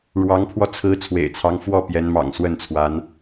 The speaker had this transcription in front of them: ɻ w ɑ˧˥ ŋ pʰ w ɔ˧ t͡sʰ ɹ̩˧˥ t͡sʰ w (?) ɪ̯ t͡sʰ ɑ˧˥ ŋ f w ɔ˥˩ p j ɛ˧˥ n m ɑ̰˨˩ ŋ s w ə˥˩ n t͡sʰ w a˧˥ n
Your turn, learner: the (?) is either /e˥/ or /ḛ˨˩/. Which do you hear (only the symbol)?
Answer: ḛ˨˩